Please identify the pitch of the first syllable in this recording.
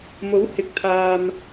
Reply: rising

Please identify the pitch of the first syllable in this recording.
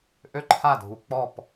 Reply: high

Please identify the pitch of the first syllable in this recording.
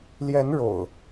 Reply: rising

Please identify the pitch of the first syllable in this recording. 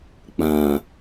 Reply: low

